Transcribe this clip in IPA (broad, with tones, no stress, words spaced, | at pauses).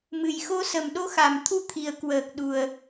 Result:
mɨ˨˩jxo˧ sə˨˩mɗo˧xa˨˩mt̪ʰu˧ t̪ʰi˨˩ə̯kwəː˨˩k̚ɗu˨˩ə̯